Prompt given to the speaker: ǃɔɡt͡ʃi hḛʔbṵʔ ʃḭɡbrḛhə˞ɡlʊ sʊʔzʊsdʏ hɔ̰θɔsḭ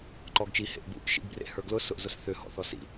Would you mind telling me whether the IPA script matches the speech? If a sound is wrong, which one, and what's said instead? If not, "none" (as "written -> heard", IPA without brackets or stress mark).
d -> θ